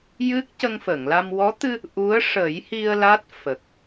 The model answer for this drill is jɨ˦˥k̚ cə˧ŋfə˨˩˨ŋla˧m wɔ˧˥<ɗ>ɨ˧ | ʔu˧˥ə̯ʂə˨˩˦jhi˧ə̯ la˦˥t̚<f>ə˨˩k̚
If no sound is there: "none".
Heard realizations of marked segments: t̪, f

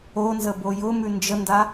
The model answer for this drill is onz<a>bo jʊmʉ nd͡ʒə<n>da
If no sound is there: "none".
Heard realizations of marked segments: ə, n

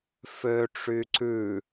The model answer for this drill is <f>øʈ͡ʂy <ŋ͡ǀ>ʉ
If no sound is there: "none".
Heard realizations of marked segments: f, ǀ

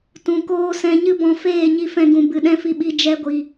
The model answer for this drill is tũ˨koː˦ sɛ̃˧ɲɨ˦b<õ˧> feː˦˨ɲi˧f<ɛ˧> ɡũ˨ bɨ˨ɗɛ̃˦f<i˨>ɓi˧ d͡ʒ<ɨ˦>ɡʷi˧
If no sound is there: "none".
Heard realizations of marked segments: ɔ̃˧, ɛ̃˧, i˧, ɛ˦

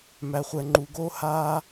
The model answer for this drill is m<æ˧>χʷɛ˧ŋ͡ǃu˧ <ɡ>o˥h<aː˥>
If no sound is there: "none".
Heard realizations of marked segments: æ˧, ɡ, aː˥

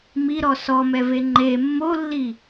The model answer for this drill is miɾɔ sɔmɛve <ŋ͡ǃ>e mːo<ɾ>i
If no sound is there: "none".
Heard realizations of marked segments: ŋ͡ǃ, lː

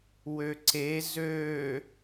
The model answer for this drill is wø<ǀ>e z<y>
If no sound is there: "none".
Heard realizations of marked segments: ǀ, ø

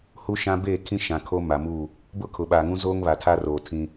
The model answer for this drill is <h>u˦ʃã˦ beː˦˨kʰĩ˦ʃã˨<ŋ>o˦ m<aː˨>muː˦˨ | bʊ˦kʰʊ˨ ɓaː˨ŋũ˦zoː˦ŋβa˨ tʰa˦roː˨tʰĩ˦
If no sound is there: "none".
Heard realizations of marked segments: h, kʰ, a˨

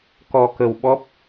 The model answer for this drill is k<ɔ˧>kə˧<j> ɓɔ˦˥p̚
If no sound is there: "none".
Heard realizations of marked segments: ɔ˧, w

